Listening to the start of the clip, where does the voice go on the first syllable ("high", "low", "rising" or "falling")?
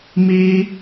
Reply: high